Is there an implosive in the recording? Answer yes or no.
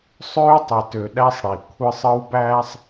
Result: yes